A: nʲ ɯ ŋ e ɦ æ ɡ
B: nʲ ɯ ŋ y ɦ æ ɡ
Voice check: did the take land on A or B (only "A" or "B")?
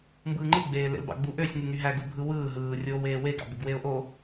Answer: B